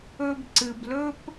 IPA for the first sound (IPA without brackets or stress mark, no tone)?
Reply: ɵ